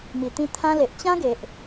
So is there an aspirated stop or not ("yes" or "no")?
yes